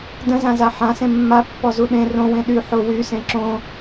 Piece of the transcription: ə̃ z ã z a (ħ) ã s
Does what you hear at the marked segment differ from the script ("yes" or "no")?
no